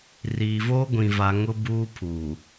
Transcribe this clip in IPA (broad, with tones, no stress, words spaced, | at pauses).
riː˨voː˦ɡʷĩ˨va˨ ŋʊ˦buː˦ pʰuː˨